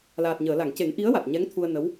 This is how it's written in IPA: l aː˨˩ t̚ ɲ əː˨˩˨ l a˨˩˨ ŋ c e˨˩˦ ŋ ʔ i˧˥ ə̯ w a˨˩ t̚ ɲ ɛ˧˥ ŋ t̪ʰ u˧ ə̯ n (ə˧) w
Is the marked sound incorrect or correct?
incorrect